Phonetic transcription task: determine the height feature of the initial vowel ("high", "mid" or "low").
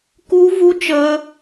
high